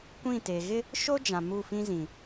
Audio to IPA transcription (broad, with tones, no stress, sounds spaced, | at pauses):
kʷ ĩ˦˨ t e˨ ɣ ɪ˦ | ʃ o˦ d͡ʒ ã˨ m u˦˨ f ĩ˦ z ĩ˨